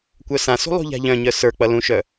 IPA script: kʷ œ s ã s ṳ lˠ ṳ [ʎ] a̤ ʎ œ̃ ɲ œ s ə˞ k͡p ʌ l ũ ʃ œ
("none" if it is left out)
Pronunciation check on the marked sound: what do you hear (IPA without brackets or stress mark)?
ʎ